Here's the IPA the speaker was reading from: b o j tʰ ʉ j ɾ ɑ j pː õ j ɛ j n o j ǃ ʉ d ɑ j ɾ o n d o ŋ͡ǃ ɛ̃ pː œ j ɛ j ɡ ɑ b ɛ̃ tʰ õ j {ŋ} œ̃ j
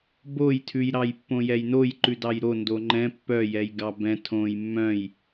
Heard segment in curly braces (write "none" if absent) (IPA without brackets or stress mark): mː